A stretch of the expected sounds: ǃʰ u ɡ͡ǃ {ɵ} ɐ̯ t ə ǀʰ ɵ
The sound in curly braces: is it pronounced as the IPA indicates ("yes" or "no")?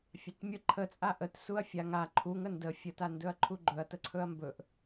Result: yes